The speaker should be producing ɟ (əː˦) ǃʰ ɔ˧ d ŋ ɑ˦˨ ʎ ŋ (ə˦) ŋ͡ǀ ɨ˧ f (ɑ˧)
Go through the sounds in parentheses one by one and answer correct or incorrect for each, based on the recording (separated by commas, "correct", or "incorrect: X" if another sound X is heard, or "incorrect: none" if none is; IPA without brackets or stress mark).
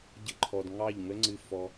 incorrect: ə˦, correct, incorrect: ɔ˧